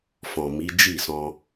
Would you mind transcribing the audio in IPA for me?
fɔ̃˨mi˨˦ d͡ʒi˦˨sɔ̃˧

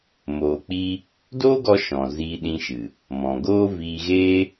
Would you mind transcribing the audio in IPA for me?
moː˨k͡pi˧ | doː˦ɡɔ˧ ʃɔ̃˨ ziː˧ɗĩ˧ʃɨ˨ | mɔ̃˨ɡoː˦ viː˧ɣeː˦

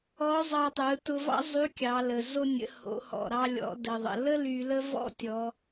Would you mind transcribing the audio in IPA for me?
ɔ˧˥zˤɑ˧tˤɯ˩˧ tʊ˧vɑ̰˥ zˤy˧˥kʲɑ˩˧lə˩ zo˧nʲə̰˩˧ ho̰˩˧hɔ̰˩ ɾɑ˧lʲɔ̰˩˧ də˩ðˤə̰˩ lə˥ ly˧lə˥ vɔ̰˥tʲɔ˩˧

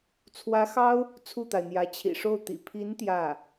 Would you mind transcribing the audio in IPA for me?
t͡sʰwä˧˥xɑ˥ʊ̯ | t͡sʰu˥˩t̪a˩ɪ̯n̪jä˧˥ t͡ɕʰḭ˨˩ʂo˥˩ʊ̯t̪ḭ˨˩ pʰi˧˥n t̪jä˥˩

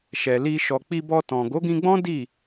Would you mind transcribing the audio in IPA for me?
ʃɛ˨li˧ ʃɔ˨k͡pi˧bɔ˧tɔ̃˨ ɡo˨˦ɡĩ˧ɡ͡bɔ̃˦ di˦˨

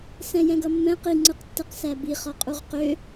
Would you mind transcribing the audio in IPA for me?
sɛ̃jɛ̃ɡʌmːɛ̃ qiŋ͡ǀɯqtːɛq sæbi χɔqʼuʁqø

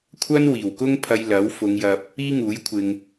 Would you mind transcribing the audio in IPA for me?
kʷʰɐ˥n wiː˨˩wkʊ˥ŋpʰɐ˧j lɐ˨˥wfʊ˨˧ŋjɐ˨p̚ | iː˥ŋuː˨˥j kʷʰɪ˨ŋ

